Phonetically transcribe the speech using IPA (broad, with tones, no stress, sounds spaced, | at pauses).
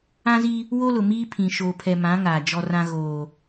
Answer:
ã˦ z i˦ | w o˦ l ʊ˨ m iː˦ pʰ ĩ˨ ʃ oː˨ pʰ ɛ˨ m ã˨˦ ŋ aː˨ d͡ʒ ɔ˦ r ã˦ ɣ oː˨